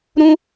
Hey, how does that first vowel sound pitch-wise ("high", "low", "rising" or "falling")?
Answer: high